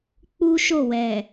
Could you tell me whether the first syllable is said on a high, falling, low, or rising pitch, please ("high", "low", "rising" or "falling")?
high